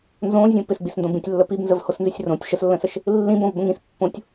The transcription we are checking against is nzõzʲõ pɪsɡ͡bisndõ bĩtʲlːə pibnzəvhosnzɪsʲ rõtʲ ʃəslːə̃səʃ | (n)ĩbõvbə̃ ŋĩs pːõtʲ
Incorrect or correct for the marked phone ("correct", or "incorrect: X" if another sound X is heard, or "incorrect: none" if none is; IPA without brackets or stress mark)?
incorrect: lː